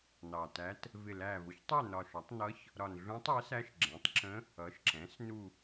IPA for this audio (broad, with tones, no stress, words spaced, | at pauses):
nɑ˨˩tæ˧˥t | vɪ˨˩læ˨˩vʊ˩˥çtˤɜ˦˨ nɒ˨˩ʃɒ˩˥tˤ nʌ˧˥ç | ɾɒ˨˩nɮũ˧˥tˤɜ˩˥sæ˧˥ʃ ɡ͡ǁɛ̃˩˥tˤǁə̃˧˥ | ʌ˩˥ʃǁɛ̃˩˥s nu˦˨